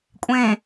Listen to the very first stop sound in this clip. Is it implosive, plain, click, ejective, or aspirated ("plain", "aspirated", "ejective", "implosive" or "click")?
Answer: ejective